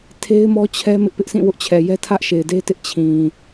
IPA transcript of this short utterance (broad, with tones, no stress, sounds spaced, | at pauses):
tʰ e˦ ɪ̯ m ɔ˦ t͡ɕʰ ɛ˦ m ɪ˦ ʔ p ɪ˦ ʔ sʰ ĩ˦˨ w ʊ˦ ʔ t͡ɕʰ ɛ˨ j ɛ˦ tʰ ä˦ ʔ ʃ e˨ ɪ̯ d e˦ t ɪ˦ ʔ t͡ɕʰ ĩ˨